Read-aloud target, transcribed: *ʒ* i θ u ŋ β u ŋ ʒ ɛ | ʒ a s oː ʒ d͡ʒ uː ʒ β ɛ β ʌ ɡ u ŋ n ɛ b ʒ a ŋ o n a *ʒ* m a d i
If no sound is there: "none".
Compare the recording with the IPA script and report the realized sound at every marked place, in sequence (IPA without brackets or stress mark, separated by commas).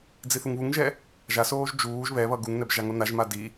d͡z, ʒ